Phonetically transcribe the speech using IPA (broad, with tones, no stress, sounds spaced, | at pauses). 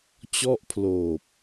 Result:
t͡ɕ ɔ˥˩ ʔ pʰ l oː˨˩ p̚